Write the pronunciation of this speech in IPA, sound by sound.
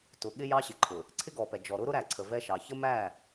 t ʊ˨ ɠ ɪ˦ j ɑ˦ ɕ ɪ˨ ǃʰ ʊ˨ | ǀʰ ɪ˦ ɡ ɔ˨ p ɛ˨ d͡ʒ ɔ˨ ɾ ʊ˦ ɾ ʊ˦ ɾ æ˨ ǀʰ ə˨ v ɛ˦ ʃ ɑ˨ ç ə˦ m æ˦˨

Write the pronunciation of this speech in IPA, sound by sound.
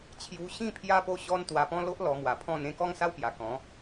t͡ɕʰ j u˧ ɕ ĩ˥˧ pʰ j a˦ p o˦ ɕ ɔ˦ n t̪ w a˧ p ɔ̃˦ l o˦ ʔ l ɔ˧ m w a˨˩ pʰ ɔ̃˥˧ n ẽ˥˧ k ɔ˦ ŋ s a˦ w p j a˨˩ k ɔ̃˨˦

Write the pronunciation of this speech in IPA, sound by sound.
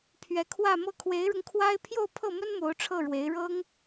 pʰ ɥ ɛ˧˥ kʰ w ä˥˧ m ɤ˥˩ kʰ w e˧˥ ɪ̯ ɻ ʊ˧ ŋ kʰ w a˥ ɪ̯ pʰ j o˥˧ ʊ̯ pʰ ɤ˥˩ m ə˥ n m o˧˥ ʊ̯ ʈ͡ʂʰ ɤ˥˩ ɻ w e˧˥ ɪ̯ ɻ ɤ˥ ŋ

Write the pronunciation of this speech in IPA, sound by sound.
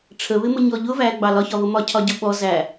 ʈ͡ʂʰ ə β ɪ m ʊ ɲ ɔ ʎ ʊ v æ ɡ͡b ɑ l ɒ ç ɒ β ʊ m ɒ cʰ ɒ ɟ ʊ ɓ ɔ z æ

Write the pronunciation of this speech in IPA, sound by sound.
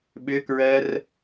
ɓ ʏ k ɹ ɜ r

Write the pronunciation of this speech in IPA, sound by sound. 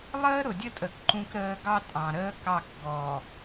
lˠ əː˦ ɾ ʊ˨ dʲ ə˦ tʼ ə˨ k ǃ ũ˦ k ɾ əː˦ ɡ ɑ˦ tʼ ɑ̃˨ ɾ əː˦ k ɑ˦˨ k ɡ ɔ˨

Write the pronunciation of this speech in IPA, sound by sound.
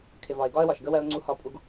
kʰ ɪ˨ v ɒ˨ ɪ̯ ɡ ɒ˦ ə̯ w ɒ˨ ʃ ɡ ə˦ w ɜ˦ ʊ̯ ŋ͡ǀ u˦ h ɒ˦ pʼ u˦ ɡ

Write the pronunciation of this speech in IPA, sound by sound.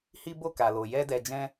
h i˦ b o˦˨ k a˨ l o˨ j ɛ˧ d ɛ˨ d͡ʒ ɛ̃˧

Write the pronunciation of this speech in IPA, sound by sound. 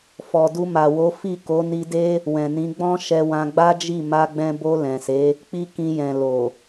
f ɔ˨ d u˧ m a˨ w o˨˦ f i˦˨ k o˨˦ n i˧ d e˦ | w ɛ̃˨ n ĩ˨˦ ɡ͡b ɔ̃˦ ʃ ɛ˦ w ã˦ ɡ͡b a˦ d͡ʒ i˦˨ m a˧ ɡ͡b ɛ̃˧ b o˧ l ɛ̃˨ s e˨˦ | k͡p i˦ k ĩ˧ j ɛ̃˨ l o˨

